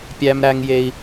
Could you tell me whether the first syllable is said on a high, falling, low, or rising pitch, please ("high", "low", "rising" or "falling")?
low